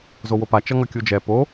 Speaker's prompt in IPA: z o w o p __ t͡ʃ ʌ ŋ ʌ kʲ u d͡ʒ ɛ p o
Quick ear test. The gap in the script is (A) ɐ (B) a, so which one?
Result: B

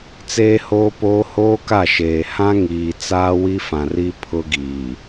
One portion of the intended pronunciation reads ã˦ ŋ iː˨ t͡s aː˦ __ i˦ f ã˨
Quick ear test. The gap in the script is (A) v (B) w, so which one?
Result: B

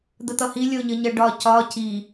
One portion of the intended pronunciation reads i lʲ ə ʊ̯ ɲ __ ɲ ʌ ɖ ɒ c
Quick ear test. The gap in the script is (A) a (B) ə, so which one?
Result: B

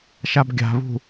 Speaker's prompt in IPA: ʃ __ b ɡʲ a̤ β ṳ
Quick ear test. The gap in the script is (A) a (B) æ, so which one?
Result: A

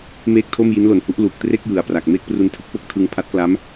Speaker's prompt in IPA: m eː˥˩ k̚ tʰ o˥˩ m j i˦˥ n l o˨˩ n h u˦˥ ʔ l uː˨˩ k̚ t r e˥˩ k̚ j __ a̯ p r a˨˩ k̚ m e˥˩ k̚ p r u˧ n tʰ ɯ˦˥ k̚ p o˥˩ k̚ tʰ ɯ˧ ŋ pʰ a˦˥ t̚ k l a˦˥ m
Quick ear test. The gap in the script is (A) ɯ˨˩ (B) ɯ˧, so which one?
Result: A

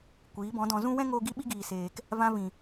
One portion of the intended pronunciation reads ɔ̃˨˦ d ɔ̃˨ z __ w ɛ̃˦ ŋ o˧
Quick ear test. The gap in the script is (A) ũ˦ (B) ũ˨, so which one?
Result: A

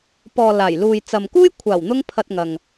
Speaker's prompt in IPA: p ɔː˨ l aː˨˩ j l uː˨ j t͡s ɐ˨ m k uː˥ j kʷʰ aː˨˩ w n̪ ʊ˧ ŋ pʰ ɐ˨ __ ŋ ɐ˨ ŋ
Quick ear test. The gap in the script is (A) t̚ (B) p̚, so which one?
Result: A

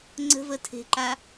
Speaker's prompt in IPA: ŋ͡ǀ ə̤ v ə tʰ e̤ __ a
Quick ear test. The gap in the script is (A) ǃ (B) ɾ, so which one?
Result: A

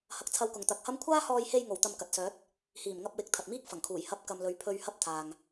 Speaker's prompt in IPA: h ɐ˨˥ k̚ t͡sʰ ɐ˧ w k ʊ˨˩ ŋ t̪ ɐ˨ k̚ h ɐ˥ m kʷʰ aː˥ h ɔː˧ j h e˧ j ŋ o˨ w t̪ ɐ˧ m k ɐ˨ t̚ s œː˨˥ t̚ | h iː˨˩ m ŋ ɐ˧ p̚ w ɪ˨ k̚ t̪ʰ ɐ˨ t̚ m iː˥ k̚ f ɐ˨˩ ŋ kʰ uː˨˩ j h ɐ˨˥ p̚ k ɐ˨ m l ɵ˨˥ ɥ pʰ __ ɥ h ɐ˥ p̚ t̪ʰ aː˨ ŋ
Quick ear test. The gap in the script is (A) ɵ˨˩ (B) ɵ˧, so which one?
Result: B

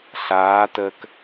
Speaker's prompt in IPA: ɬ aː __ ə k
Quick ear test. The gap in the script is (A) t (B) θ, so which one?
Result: A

